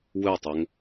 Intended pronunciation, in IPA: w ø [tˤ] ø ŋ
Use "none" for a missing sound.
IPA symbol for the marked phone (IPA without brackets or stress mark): tˤ